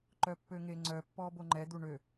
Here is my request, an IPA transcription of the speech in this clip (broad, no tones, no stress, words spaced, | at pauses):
ǃœpːøŋeŋ͡ǀœ pːɔboŋ͡ǃɛ d̪uɳø